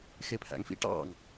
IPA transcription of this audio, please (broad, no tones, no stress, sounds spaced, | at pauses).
x e pʰ æ̰ ŋ f ḭ ʈ ɑ̰ ŋ